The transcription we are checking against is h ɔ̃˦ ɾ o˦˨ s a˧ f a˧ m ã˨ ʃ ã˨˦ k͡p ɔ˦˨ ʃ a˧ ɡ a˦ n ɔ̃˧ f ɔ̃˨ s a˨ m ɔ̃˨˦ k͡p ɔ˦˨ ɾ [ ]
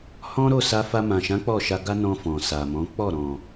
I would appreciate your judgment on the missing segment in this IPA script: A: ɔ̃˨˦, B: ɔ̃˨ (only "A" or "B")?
B